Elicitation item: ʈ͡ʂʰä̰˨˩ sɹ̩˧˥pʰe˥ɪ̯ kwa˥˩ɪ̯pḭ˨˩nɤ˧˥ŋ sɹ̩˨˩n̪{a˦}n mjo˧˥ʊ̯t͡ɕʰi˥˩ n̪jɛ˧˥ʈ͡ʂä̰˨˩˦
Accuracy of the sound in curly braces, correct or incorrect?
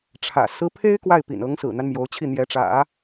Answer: correct